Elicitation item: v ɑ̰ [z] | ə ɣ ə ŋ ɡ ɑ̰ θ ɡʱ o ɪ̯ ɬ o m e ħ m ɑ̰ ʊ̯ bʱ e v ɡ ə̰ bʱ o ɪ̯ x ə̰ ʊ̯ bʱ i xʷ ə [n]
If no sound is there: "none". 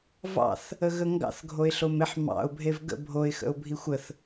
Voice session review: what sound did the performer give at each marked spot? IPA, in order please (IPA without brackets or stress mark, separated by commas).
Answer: θ, θ